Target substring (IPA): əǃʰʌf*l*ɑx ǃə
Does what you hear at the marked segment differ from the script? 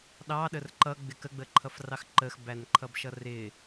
yes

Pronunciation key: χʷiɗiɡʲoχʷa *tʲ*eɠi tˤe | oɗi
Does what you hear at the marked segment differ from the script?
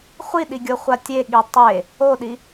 no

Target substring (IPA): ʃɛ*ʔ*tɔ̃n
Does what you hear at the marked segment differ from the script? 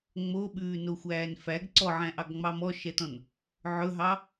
yes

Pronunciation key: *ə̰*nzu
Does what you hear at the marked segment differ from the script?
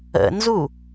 no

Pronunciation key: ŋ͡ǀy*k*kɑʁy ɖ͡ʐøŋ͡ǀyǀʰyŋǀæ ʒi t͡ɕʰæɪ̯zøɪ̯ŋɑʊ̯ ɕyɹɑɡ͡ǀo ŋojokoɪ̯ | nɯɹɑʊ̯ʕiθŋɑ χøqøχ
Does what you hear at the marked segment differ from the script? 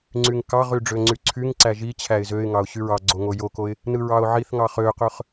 yes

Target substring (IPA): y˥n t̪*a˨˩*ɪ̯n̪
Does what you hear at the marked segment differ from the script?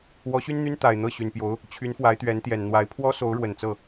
no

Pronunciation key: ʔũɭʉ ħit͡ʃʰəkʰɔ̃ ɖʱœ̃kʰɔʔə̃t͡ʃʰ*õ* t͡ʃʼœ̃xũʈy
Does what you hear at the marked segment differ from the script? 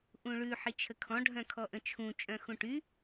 yes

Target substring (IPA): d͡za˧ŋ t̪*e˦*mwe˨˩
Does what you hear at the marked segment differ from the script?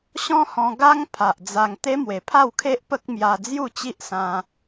no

